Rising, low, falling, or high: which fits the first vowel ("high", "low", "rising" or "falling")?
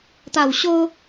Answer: low